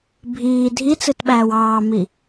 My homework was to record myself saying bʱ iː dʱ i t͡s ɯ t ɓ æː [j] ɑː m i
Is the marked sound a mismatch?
yes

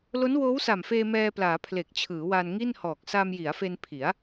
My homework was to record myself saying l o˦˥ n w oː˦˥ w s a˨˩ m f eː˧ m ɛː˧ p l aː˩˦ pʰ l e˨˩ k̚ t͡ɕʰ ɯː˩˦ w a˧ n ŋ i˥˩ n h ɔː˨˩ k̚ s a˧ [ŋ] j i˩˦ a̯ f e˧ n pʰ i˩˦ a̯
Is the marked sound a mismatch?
yes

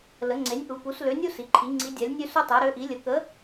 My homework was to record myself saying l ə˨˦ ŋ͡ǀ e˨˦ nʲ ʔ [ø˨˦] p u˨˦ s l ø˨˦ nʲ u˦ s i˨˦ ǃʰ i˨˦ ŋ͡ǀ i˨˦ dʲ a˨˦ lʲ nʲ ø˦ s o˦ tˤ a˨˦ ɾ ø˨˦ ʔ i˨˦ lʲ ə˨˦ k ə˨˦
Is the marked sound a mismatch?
yes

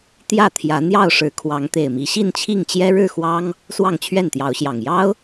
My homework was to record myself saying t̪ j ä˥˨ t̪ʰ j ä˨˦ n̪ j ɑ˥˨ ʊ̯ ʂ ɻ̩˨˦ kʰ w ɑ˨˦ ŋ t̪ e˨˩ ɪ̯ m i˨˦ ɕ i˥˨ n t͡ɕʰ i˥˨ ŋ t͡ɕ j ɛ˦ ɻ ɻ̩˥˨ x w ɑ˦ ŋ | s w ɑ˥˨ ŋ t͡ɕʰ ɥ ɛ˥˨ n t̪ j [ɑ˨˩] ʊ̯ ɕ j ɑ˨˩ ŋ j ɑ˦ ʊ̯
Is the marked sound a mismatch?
yes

